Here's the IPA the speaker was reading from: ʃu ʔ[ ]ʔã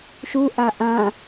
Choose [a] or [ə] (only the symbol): a